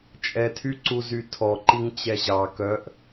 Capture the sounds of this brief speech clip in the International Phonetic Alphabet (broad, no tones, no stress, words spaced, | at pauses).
t͡ʃʼɛtʰyǀuzy tʰɔǃiŋt͡ɕɛ ʑɑ kœʔ